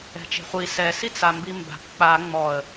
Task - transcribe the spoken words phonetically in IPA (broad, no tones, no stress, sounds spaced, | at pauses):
ɛ̤ t͡ʃ e̤ χʷ i s ɛ s i t͡s a m b i m b a̤ p k͡p a ŋ͡m ɔ ə̯